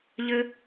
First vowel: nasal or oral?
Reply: oral